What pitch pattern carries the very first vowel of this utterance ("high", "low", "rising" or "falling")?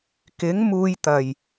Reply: rising